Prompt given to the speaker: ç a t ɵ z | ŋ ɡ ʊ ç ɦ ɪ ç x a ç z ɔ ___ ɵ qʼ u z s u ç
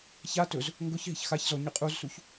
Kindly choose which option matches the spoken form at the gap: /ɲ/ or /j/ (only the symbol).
ɲ